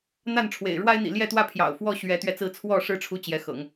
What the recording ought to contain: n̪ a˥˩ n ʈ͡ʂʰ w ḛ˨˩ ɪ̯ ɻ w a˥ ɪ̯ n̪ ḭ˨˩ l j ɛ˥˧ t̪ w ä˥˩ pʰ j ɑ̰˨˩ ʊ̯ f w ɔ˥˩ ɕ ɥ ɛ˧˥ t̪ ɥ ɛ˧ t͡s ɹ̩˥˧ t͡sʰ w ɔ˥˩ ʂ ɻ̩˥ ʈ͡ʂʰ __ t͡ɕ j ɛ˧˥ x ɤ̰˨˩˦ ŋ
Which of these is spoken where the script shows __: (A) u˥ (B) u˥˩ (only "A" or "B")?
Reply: A